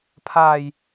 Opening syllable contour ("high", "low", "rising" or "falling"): low